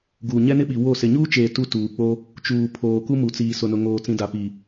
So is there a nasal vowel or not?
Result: yes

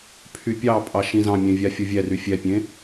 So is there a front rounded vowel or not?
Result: yes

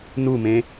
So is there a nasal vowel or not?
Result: yes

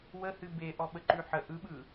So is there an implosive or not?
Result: yes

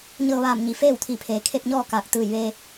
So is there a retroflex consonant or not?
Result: no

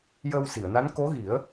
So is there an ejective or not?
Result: no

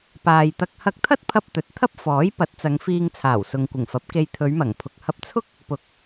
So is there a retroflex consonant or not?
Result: no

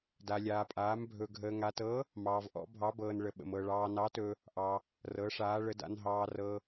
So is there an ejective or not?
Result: yes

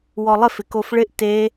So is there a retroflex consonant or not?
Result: yes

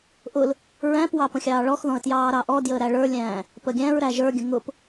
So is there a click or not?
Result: no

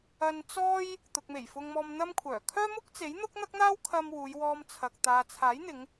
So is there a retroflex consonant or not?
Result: no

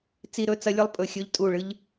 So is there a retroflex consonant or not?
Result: yes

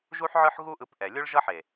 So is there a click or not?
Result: no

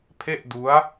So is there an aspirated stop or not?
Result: yes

